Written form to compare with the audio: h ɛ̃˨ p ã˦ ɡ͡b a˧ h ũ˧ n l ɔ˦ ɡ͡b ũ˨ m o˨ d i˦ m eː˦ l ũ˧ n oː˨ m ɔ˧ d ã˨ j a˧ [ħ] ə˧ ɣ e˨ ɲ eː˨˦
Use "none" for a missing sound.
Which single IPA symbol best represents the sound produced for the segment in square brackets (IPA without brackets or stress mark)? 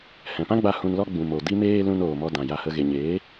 h